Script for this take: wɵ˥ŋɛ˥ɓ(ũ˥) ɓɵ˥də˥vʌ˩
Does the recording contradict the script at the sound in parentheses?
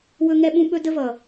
no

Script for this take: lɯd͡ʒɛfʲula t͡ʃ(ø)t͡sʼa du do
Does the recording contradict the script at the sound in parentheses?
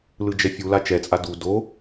yes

